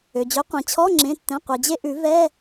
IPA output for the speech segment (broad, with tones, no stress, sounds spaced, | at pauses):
ø˩ d͡ʑ ø˩˥ qʷ ẽ˩ t͡ɕʰ ɔ˧˥˧ ŋ͡ǁ ẽ˩˧˩ tː ɛ̃˩˧˩ qʷ i˩ d͡ʑ e˧ ʔ ʉ˨˩˦ v ɛ˧˥˧